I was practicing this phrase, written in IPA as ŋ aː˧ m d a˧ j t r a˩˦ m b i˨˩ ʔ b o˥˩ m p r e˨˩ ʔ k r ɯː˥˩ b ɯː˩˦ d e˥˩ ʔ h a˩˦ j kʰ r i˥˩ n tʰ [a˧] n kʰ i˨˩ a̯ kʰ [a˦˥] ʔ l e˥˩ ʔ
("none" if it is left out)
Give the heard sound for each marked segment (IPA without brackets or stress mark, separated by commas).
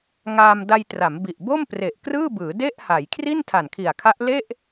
a˨˩, a˦˥